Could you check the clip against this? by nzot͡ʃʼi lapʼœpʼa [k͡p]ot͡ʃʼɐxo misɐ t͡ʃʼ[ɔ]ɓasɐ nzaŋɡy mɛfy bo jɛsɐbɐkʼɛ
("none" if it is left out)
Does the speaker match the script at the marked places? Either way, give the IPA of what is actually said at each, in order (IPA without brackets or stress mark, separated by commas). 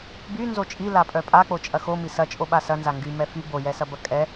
k͡p, o